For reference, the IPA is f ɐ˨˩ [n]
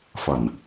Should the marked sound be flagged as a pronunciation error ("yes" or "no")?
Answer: no